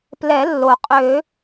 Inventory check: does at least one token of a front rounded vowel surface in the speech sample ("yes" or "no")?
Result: yes